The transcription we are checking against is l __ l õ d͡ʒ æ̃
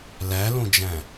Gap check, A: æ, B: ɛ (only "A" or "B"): A